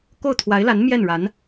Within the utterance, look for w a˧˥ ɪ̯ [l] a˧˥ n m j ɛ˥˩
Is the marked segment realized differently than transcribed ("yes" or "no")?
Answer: no